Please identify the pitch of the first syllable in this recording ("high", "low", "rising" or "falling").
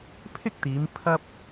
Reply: high